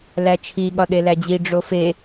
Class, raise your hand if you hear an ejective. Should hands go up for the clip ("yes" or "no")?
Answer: no